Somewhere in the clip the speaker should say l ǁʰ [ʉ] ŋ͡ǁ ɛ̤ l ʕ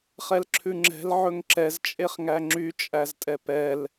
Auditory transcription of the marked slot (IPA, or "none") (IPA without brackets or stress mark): ʉ